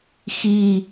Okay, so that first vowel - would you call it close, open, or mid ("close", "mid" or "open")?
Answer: close